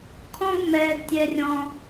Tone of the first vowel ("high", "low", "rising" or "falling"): high